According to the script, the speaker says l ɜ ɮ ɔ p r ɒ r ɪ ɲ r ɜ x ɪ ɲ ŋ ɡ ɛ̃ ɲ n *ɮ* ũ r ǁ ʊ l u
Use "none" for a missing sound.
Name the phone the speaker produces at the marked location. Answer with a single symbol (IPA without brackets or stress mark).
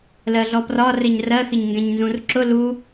z